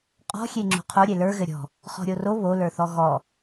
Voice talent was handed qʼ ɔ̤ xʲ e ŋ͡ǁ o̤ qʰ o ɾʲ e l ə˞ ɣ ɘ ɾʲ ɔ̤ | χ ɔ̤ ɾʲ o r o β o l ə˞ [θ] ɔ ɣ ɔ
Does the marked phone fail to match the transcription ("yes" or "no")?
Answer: no